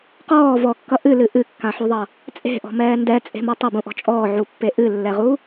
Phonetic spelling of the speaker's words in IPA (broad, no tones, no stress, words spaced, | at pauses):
qɔː vɔkːʌ ʔɨlɨ ʔɨkːãħuðˤʌ | t͡sʼe̤ʔɔ̤mɛː ndɛt͡sʼe̤mʌ tˤʌbũʔɔ̤ t͡ʃʼɔːʕupːe ʔɨlːɛʁu